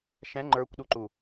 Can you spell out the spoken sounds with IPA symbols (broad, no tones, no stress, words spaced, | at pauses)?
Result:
ʃɛ̃ ŋ͡ǃə˞kʷɗuǃu